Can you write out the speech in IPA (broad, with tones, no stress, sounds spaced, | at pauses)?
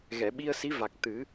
ɣ ɛ˨˩˨ ɓ i˧ ə̯ s i˧˥ v a˨˩ k̚ t̪ ɨ˨˩˦